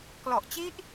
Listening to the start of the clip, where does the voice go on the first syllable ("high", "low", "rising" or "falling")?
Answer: low